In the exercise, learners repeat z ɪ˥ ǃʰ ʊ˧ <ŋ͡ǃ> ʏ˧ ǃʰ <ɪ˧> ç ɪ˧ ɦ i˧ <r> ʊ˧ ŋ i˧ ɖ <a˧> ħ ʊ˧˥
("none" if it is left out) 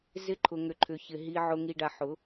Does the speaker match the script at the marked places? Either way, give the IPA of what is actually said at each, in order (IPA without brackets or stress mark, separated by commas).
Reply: ŋ, ʏ˧, ʕ, a˧